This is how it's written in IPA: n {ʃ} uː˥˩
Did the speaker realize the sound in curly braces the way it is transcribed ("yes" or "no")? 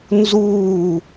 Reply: no